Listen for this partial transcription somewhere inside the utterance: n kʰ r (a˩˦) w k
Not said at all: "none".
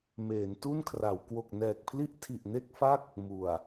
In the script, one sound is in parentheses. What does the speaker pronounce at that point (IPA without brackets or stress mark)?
a˩˦